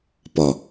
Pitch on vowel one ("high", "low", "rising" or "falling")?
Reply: low